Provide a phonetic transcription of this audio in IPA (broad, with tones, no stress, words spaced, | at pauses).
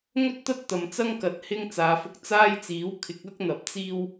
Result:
ŋɵ˥t̚t̪ɐ˥t̚ t̪ɐ˨mt͡sɐ˥ŋ kɐ˨˥t̚hɪ˥ŋ t͡saː˨fʊ˧k̚ t͡saː˥jt͡siː˨˥w kʰɪ˨˥k̚ ɐ˥k̚n̪ɐ˨p̚ t͡siː˥w